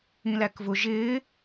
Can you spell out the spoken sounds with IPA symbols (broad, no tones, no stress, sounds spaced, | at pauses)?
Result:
ĩ l æ k v ʊ ʒ ɪː